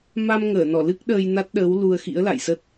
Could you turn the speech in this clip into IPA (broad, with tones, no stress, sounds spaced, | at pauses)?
m a˧ m ŋ əː˧˩ n ɔ˧˩ l ɨ˦˥ k̚ ɗ əː˧ j n a˦˥ t̚ ɗ əː˨˦ w l u˧ ə̯ x ḭ˧˥ ə̯ l a̰˧˨ j s ə˦˥ t̚